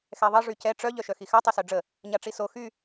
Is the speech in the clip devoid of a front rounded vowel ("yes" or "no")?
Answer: no